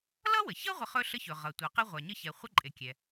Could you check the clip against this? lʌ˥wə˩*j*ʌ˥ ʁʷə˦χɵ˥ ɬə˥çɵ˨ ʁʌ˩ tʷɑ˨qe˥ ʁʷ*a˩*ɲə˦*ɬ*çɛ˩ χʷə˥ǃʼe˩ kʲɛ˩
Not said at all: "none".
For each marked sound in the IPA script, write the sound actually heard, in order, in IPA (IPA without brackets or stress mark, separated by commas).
ç, a˩, none